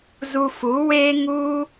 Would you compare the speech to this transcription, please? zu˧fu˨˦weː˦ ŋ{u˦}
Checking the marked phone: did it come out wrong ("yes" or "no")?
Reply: no